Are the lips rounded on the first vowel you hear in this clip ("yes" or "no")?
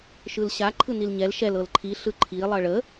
no